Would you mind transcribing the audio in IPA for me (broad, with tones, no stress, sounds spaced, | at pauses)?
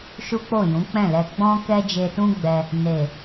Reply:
ʃ u˦ k͡p o˦˨ j ũ˨˦ k͡p ɛ̃˦˨ l ɛ˧ ɡ͡b ɔ̃˦ k ɛ˦ d͡ʒ e˧ t ũ˦ ɡ͡b ɛ˧ | n e˨